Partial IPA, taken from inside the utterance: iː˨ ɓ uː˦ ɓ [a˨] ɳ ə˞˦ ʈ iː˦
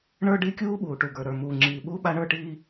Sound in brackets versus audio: incorrect: a˦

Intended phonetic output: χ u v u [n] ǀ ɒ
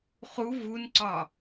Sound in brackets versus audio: correct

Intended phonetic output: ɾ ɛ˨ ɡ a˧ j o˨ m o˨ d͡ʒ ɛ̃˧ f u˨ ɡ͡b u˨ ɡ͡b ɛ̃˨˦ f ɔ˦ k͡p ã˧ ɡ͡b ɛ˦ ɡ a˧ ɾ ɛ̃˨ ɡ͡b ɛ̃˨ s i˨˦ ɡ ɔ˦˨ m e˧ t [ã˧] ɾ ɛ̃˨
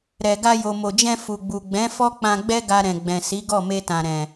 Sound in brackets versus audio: incorrect: ã˨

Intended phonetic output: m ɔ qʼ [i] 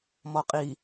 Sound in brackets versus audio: correct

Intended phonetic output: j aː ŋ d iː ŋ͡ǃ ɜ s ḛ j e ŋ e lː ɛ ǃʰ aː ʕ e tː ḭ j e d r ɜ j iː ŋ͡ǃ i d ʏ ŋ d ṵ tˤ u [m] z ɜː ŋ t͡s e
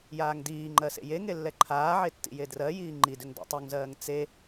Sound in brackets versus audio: incorrect: ŋ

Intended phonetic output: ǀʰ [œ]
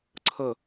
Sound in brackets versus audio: incorrect: ə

